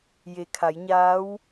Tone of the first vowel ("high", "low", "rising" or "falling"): low